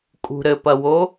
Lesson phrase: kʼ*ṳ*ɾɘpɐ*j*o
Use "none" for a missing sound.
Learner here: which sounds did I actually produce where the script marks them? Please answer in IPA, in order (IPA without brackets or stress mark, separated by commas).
ṳ, w